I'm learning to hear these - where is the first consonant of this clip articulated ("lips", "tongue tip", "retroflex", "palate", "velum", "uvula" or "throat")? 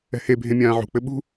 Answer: throat